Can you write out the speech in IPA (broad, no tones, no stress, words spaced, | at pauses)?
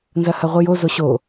nzɐhɐʁʷɨjo zoɕo